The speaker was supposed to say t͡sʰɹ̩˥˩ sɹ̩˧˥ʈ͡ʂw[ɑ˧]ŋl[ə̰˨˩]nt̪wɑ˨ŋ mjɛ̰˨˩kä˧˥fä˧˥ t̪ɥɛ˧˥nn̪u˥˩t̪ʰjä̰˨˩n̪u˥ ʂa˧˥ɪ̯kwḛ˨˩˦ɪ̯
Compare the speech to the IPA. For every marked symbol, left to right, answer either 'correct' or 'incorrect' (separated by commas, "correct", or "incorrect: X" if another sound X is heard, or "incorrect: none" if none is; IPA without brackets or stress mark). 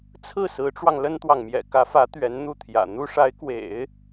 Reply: correct, incorrect: ə˥